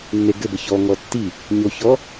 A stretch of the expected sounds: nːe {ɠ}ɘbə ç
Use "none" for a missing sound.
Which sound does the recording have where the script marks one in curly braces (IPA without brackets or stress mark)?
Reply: ɡ